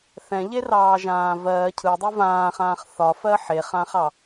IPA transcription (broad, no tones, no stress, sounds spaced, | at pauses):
θ ɛ̃ ʎ e r ɑː ʒ ãː v ɜ cʰ ɯ dˤ u v ãː χ ãː χ θ ɒ f ɜ ħ e χ ã χ ɑ